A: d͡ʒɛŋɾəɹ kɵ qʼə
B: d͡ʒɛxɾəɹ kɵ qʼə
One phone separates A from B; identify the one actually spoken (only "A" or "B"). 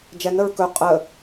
A